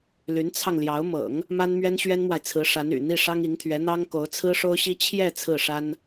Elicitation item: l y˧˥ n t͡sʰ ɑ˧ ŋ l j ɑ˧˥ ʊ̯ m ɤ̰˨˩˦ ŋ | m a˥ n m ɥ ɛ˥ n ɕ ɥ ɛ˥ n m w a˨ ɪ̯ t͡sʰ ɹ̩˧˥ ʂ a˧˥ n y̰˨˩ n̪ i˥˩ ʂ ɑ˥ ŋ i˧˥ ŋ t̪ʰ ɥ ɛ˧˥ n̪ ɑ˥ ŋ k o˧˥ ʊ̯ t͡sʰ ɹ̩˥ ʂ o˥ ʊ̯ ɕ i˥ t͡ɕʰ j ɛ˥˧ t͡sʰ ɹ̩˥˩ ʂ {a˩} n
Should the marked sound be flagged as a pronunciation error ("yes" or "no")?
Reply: yes